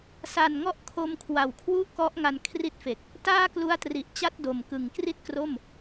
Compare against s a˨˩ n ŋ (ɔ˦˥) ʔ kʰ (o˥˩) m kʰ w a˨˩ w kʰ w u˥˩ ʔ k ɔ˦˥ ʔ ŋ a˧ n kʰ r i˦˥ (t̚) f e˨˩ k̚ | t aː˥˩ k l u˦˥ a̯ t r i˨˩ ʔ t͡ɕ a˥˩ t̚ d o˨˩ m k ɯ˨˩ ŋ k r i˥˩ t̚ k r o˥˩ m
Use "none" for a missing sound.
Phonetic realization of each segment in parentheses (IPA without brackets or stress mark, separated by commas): ɔ˦˥, o˧, t̚